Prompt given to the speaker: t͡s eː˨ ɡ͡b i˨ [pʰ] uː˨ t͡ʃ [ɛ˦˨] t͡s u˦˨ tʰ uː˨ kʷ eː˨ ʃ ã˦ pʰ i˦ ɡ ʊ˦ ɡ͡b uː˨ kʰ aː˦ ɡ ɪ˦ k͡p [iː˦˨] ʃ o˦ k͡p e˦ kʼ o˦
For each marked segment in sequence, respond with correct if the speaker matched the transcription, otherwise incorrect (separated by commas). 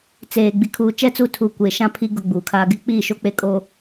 incorrect, correct, correct